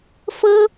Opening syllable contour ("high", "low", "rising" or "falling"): high